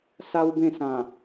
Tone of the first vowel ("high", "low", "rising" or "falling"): high